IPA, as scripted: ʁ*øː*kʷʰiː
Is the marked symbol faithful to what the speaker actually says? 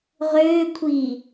yes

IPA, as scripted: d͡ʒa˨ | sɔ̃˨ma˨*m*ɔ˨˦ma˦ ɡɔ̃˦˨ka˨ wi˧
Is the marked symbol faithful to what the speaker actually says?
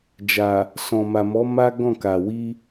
yes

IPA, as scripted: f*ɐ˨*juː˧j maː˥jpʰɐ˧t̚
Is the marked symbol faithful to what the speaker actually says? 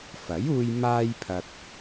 no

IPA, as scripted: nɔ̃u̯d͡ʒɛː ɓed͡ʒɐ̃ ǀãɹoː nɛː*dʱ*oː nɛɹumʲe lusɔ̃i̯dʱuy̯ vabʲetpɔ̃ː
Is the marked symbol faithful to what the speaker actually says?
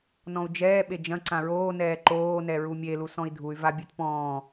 no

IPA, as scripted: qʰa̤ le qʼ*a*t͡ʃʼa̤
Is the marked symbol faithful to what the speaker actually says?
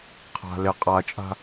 yes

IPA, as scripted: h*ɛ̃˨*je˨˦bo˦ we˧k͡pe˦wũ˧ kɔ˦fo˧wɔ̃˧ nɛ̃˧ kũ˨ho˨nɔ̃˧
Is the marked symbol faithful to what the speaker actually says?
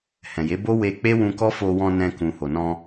yes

